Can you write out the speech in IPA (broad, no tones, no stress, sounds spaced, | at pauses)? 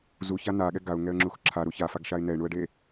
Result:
z u ç a n a ɠ ɛ ɡ a ʊ̯ ŋ ɛ ə̯ ŋ͡ǁ u x ǁʰ a ɾ u ç a f a ɡ ʃ a ɪ̯ n ɛ ɪ̯ ɳ u ə̯ ɖ e